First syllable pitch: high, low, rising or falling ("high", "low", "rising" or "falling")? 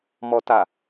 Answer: low